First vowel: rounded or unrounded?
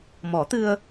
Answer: rounded